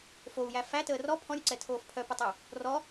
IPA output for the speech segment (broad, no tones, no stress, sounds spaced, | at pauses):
f o u̯ j æ f æ t əː r ɔ pʰ ɔ̃ ɾʲ o ǀ ɛ tʰ oː f pʰ œ p ə tˤ ə u̯ | r ɔ